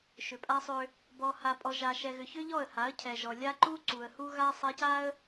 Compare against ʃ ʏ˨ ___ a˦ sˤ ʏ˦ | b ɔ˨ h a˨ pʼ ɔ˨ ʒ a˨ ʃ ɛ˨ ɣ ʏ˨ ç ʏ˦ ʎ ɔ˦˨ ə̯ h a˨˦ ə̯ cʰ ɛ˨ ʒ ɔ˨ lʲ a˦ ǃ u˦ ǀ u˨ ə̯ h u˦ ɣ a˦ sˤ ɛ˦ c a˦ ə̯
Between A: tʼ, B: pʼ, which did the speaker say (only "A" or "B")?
B